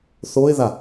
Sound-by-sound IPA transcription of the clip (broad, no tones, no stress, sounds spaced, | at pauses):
θ o ɪ̯ ð a